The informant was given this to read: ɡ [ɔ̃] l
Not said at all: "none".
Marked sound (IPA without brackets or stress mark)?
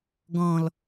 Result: ɔ̃